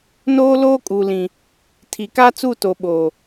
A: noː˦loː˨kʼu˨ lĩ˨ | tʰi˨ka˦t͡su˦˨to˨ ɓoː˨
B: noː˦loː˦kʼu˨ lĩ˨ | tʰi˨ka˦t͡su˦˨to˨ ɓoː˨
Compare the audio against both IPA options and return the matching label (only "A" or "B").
B